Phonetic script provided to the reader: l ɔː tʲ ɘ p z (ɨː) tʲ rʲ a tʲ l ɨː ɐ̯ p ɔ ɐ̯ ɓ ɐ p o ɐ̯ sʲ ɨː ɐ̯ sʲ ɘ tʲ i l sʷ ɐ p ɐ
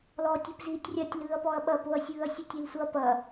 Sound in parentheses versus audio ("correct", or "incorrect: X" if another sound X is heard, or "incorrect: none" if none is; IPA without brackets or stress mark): incorrect: iː